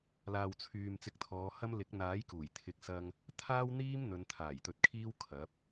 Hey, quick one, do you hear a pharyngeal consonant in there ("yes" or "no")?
no